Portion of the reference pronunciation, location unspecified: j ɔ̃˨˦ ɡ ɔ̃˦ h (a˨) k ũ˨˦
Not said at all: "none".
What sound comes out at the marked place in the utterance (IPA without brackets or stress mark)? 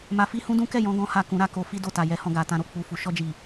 a˦˨